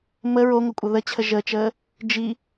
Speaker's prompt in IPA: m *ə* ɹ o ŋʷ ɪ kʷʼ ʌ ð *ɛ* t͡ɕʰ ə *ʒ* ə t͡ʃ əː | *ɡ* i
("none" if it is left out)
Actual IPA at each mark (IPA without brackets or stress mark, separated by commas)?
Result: ə, ə, ʒ, d͡ʒ